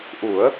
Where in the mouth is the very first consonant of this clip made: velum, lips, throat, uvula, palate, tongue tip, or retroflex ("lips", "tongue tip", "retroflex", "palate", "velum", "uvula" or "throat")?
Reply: throat